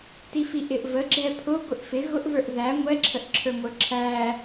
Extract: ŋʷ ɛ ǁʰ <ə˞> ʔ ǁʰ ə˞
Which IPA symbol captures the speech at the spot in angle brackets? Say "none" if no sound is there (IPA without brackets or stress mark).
ə